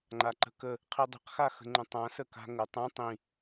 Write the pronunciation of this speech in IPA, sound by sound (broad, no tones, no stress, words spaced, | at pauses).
ŋ͡ǃaǃə̤kə | qʰidˤə̤q xaxə̤ŋ͡ǃə̃tˤã səka̤ŋə tˤɐ̃ tˤĩ